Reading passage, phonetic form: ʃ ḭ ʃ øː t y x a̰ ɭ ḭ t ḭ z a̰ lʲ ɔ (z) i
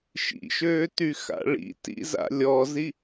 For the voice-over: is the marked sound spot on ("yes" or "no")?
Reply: yes